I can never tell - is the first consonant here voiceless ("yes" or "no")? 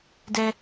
no